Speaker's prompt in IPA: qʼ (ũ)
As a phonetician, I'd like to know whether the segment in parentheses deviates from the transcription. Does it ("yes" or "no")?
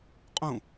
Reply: no